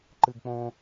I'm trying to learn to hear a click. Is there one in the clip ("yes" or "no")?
yes